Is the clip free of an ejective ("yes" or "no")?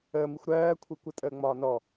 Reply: no